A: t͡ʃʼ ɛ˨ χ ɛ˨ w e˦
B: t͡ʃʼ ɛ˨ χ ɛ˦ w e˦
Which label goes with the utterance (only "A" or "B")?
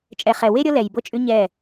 A